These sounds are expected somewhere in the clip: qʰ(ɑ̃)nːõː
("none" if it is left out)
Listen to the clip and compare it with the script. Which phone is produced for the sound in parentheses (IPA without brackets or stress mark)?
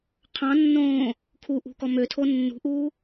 ɑ̃